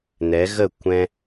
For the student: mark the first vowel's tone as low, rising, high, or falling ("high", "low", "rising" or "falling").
rising